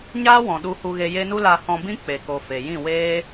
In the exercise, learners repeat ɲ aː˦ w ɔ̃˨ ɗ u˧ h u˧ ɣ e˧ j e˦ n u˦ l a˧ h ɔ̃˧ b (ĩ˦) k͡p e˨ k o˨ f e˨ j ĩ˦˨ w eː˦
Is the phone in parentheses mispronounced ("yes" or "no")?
no